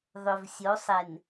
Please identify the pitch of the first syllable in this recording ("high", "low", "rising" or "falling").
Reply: low